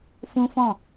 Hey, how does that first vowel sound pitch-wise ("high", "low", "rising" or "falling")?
high